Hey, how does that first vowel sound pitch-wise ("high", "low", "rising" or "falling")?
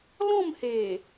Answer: falling